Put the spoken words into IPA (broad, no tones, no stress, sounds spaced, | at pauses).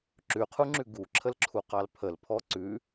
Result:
ǁ ʉ qʰ u ŋ͡ǁ ʉ ɡ u ǁʰ ə l ǁʰ u q ɑ l pʰ ə l pʰ ɔ ǀ ʉ